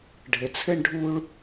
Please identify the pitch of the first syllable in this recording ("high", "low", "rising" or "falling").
low